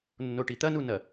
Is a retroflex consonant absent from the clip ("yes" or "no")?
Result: no